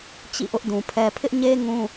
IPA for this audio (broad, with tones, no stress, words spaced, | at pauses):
t͡ɕḭ˦˨ʔʊ˦ʔdũ˨pʰɛ˦ pʰɪ˦ʔɲe˦ ŋũ˦